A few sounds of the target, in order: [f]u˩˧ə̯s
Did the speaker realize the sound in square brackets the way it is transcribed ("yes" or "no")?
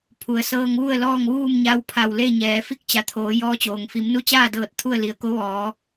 no